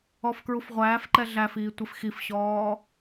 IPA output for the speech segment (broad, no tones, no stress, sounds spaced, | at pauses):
ɔ f k ɹ u f ʁʷ æː f ǃ ɛ ɮ æ f iː tʷ ɪ f x i f ɕ ɔː